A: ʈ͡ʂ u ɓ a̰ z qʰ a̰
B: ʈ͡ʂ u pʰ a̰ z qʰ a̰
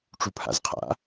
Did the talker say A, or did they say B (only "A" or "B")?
B